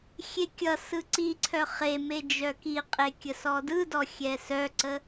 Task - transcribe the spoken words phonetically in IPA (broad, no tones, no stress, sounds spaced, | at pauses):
xʲ e kʲ ʌ s ɯ ǀ i ǀʰ œ χ e m e d͡ʒ œ k i qʼ e kʲ ə s ɔ d ɯ d ɔ xʲ ɛ s œ ǀ ə